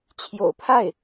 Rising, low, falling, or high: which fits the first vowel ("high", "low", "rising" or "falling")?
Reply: low